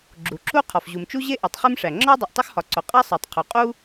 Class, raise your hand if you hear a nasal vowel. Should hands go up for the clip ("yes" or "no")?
no